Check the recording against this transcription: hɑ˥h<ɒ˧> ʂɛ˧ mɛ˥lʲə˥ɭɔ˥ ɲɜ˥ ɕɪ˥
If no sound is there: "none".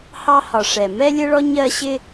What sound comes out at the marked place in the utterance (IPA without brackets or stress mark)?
ɒ˧